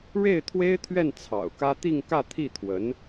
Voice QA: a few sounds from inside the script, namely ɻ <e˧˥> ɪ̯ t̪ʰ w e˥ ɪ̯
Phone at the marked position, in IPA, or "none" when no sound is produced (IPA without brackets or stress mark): e˥˩